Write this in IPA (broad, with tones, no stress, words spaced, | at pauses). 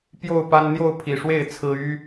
pjo˥˨ʊ̯pa˦n n̪jo˥˨ʊ̯pʰi˨˩ʂwe˥˨ɪ̯ t͡sʰɹ̩˦ y˦